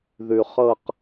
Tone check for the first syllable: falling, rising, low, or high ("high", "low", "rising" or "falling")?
low